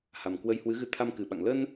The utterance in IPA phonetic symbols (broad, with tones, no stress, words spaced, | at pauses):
ha˨˩mkwə˧jhwɨ˨˦ɣɨ˧ t̪ʰa˧mkɨ˨˩ɓa̰˧˨ŋ lə˧n